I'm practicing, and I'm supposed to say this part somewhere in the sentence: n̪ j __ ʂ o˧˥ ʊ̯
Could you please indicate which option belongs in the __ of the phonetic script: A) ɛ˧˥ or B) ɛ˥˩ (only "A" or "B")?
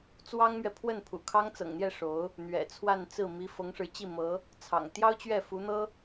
B